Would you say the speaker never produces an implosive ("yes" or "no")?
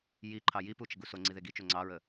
yes